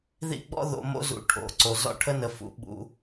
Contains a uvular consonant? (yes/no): no